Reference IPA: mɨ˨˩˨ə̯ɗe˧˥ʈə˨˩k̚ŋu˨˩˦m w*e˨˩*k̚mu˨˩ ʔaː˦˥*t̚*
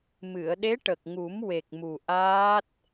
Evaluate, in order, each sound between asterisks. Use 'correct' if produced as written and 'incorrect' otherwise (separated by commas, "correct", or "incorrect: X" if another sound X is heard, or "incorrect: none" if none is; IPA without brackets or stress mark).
correct, correct